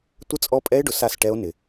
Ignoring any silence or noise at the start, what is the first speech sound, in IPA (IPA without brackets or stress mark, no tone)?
tʷ